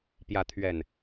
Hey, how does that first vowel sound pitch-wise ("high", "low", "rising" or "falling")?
rising